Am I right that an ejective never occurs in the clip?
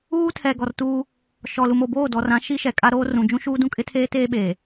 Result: no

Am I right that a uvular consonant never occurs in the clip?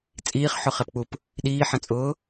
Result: no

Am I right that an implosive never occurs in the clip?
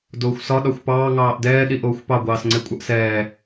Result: no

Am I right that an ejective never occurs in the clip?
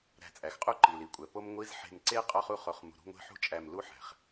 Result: no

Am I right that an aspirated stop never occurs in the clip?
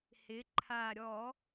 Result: no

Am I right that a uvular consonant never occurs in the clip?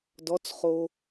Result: no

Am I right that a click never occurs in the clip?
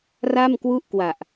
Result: yes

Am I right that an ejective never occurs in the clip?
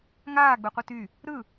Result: yes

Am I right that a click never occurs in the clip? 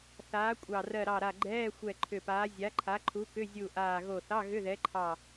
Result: no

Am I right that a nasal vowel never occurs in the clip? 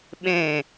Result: no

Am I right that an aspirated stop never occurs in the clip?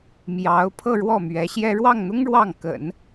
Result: no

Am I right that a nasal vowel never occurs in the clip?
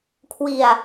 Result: yes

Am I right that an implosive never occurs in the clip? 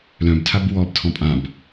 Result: yes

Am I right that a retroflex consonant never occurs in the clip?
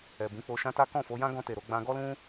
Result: yes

